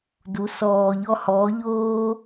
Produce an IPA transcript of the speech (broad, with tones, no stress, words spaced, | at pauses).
du˨˦ sɔː˨ʎɔ˧hɔː˨˦ʎoː˦